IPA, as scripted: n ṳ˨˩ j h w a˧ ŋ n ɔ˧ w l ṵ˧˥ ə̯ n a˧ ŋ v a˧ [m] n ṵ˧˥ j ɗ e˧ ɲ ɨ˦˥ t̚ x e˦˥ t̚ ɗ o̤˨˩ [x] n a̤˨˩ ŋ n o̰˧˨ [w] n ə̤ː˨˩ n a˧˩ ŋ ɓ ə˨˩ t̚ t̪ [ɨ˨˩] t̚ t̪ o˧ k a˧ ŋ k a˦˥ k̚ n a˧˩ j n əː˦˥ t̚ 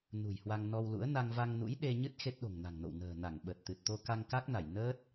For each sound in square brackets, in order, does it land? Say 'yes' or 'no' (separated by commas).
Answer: no, no, yes, yes